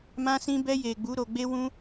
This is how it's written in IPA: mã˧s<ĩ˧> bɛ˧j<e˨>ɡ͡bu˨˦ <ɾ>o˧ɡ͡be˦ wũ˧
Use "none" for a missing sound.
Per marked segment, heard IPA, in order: ĩ˧, e˨, ɾ

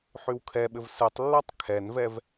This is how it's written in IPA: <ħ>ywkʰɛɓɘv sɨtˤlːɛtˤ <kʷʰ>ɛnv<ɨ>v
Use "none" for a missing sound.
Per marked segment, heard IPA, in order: ħ, kʰ, ɛ

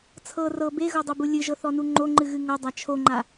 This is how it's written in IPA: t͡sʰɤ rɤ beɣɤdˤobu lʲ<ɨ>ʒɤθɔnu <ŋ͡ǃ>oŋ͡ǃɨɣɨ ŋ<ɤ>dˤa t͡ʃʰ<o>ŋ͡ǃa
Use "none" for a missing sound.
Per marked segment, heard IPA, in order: ɨ, ŋ͡ǃ, ɤ, o

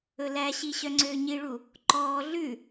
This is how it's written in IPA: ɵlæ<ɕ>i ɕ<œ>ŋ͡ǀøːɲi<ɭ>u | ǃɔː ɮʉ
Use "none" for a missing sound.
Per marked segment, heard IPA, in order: ɕ, œ, ɭ

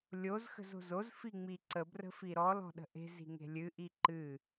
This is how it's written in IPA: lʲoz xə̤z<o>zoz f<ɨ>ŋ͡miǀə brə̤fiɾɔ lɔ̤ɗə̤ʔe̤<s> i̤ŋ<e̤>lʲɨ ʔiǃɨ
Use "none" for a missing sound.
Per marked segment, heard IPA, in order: o̤, i, z, e̤

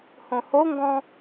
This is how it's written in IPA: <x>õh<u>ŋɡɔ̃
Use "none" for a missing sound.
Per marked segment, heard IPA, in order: h, o

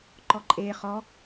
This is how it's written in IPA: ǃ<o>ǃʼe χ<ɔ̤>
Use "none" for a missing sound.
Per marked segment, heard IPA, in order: ɔ, ɔ

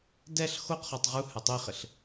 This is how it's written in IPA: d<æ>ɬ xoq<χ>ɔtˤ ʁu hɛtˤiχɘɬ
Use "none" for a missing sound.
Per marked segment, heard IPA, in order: ɛ, χ

